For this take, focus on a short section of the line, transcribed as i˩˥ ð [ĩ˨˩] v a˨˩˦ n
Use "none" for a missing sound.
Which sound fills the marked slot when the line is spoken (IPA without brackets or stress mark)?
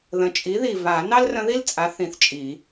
i˨˩